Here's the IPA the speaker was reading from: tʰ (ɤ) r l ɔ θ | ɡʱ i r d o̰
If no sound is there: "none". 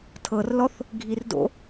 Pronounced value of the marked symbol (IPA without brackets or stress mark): ɤ